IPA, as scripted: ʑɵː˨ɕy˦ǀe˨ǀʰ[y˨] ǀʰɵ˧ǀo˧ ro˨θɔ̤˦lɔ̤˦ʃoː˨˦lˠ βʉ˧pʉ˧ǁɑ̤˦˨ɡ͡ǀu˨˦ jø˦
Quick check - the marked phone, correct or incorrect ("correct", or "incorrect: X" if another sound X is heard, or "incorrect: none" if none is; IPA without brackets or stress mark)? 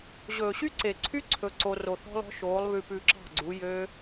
incorrect: y˦